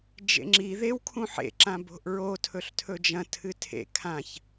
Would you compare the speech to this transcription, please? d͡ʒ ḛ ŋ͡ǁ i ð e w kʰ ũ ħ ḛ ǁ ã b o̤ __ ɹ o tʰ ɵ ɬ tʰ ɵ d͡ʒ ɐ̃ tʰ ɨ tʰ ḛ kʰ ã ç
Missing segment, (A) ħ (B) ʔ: B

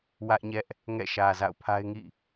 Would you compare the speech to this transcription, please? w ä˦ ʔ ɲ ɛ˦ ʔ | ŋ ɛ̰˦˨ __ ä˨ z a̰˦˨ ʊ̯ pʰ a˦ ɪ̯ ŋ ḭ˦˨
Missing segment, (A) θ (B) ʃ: B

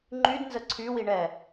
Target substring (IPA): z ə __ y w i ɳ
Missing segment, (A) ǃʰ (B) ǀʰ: B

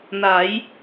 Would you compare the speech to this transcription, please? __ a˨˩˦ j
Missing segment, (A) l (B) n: B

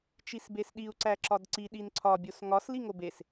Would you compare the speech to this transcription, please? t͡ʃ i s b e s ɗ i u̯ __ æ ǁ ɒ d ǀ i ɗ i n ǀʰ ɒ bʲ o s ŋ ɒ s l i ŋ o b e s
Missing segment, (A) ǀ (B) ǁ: A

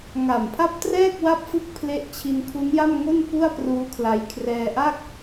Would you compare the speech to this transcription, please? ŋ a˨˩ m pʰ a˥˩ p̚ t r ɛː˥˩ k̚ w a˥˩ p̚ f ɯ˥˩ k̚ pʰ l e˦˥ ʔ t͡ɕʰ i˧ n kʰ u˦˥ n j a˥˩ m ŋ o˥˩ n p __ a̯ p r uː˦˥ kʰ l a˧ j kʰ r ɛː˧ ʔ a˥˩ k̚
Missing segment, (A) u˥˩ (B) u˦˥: A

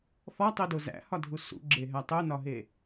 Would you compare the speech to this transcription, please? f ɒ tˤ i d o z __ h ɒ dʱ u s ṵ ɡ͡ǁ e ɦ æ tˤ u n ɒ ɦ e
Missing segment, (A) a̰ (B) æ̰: B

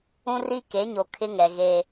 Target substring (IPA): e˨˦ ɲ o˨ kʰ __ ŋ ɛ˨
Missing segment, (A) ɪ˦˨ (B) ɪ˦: B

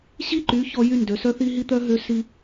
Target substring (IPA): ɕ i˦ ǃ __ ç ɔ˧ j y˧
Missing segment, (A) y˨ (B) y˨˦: B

